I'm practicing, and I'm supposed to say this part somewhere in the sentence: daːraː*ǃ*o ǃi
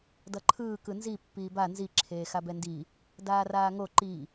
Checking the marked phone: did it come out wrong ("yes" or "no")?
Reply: yes